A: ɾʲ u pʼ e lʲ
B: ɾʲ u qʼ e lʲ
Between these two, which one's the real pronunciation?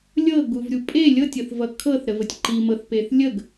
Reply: A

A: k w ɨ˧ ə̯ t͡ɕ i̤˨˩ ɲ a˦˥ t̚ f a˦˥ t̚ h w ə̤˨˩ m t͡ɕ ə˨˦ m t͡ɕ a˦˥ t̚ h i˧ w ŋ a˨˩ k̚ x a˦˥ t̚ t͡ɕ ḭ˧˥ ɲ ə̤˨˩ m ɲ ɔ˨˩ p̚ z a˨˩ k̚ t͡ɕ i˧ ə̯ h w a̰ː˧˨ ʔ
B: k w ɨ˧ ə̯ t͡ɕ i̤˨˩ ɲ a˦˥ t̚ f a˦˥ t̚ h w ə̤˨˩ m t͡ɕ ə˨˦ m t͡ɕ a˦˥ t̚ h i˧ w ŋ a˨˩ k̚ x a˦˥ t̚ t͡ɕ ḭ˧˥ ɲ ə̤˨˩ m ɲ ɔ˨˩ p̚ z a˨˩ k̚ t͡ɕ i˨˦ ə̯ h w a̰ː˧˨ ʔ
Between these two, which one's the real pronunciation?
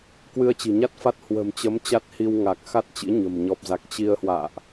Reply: A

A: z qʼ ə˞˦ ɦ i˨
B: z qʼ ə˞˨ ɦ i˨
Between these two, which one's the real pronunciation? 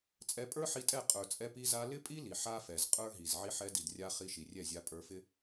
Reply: A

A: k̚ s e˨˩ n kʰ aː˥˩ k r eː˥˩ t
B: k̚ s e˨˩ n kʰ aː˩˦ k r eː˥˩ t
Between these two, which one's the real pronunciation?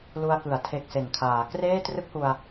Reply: B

